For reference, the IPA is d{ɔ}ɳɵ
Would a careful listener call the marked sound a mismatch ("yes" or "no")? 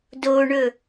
yes